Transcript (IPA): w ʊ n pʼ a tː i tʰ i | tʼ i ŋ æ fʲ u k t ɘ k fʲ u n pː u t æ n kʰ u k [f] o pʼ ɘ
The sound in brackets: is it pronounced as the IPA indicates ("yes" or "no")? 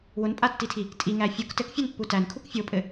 no